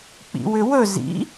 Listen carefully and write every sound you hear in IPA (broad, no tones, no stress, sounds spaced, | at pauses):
k͡p ḭ w ʏ w ɵ z ḭ